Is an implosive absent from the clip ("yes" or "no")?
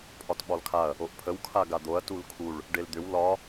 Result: no